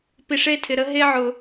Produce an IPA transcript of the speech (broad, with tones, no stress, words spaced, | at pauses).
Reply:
pi˨ʂe˦tʰɪ˨ɾə˦ ɦe˦ʕʊ˨